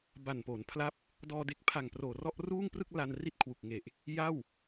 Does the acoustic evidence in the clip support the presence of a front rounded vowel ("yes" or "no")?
no